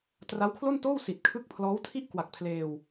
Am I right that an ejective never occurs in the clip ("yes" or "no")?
yes